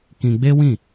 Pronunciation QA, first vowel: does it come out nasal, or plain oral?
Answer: nasal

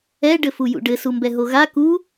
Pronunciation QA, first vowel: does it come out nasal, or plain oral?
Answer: oral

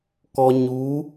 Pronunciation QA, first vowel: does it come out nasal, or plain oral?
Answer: oral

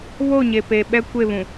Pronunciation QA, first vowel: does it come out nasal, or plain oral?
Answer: oral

